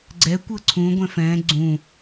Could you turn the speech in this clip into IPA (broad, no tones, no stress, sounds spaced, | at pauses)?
ɡ͡ǀ ɛ kʷ ɤ ǀʰ ũ ɡʷ ɛ̃ f ɛ̃ ɡ͡ǀ ũ